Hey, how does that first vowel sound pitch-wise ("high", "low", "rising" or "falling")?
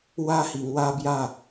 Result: high